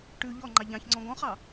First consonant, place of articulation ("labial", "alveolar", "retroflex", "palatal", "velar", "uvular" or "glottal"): retroflex